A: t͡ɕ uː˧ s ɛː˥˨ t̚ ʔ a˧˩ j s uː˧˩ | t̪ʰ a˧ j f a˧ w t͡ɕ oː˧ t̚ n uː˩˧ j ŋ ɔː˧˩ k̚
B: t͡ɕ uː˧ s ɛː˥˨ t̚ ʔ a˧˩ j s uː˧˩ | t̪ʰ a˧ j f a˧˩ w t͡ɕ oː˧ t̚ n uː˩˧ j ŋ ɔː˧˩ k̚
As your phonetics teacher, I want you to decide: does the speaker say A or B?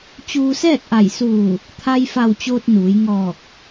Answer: B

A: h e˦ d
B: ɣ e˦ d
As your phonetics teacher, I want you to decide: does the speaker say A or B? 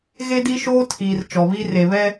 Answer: B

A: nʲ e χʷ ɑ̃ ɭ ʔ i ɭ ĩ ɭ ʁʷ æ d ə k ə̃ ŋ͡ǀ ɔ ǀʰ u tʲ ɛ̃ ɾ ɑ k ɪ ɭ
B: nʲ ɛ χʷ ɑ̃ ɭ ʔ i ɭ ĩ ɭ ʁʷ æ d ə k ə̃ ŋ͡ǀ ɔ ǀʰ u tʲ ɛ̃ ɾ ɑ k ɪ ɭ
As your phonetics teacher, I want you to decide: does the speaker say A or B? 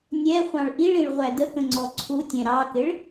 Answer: B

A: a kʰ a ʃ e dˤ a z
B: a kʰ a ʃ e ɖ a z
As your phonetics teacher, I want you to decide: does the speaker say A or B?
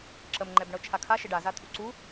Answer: B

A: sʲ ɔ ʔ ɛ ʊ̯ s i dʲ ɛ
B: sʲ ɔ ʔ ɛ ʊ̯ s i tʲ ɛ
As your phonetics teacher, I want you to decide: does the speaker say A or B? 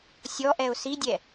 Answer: A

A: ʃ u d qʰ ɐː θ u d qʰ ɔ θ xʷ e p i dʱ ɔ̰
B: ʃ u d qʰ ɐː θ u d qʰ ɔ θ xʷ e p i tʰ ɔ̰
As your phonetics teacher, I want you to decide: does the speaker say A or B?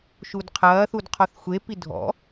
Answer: A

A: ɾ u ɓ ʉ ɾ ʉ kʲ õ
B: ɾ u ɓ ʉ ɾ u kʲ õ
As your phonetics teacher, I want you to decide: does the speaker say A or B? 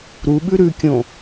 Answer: A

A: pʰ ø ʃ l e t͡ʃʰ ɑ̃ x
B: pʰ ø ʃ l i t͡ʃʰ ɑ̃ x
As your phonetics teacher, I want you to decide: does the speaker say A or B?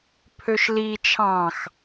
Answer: B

